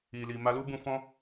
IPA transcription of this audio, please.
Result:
i˨ l i˨ m a˧ l u˦ b ũ˧ f ɔ̃˦

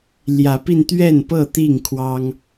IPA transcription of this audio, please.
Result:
l j ä˨˦ p i˧ n t̪ ɥ ɛ˥˨ n p ɤ˥˨ t̪ i˥˨ ŋ kʰ w ɑ˦ ŋ

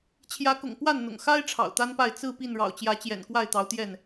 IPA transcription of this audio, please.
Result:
t͡ɕʰ j ä˨˦ k ʊ̰˨˩ ŋ p w a˥˨ n n̪ ʊ̰˨˩ ŋ x a˦ ɪ̯ ʈ͡ʂʰ ɑ̰˨˩ ʊ̯ t̪ a˦ n p a˥˨ ɪ̯ t͡s ɹ̩˥˨ p i˥˨ n ɻ ɑ̰˨˩ ʊ̯ t͡ɕ j ä˨˦ t͡ɕ j ɛ̰˨˩ n k w a˥˨ ɪ̯ t̪ ɑ˨˦ ʊ̯ t̪ j ɛ˥˨ n

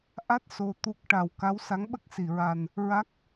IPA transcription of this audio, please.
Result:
ʔ a˦˥ t̚ s o˧ t̪ u˦˥ k̚ ʈ a˨˩ w k a˧˥ w s a˧˥ ŋ ɓ ə˦˥ k̚ s i˨˩˨ ɹ a˨˩ n | ɹ a˦˥ k̚

